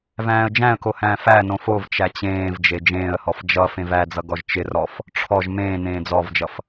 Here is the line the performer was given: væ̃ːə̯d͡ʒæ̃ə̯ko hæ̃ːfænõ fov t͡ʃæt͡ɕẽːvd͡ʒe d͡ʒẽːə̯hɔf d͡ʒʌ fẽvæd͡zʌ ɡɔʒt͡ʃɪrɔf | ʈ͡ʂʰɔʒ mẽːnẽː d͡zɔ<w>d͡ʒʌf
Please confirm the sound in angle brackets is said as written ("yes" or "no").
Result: no